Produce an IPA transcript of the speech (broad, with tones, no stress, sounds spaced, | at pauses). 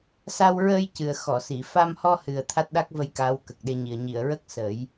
s a˧ w ɹ əː˧ j c ɨ˨˩ ə̯ x ɔ˨˩˨ s i˨˩˨ f a˧ m h ɔ˧ h ɨ˨˩ ə̯ t̪ʰ a˦˥ t̚ ɗ a˦˥ k̚ v ə˧ j k aː˧˥ w k ə˨˩ k̚ ɗ e˧ ɲ i˨˩ ə̯ ɲ i˨˩˨ ə̯ ɹ ə˦˥ k̚ s ə˨˩˦ j